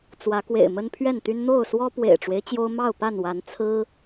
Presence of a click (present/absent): absent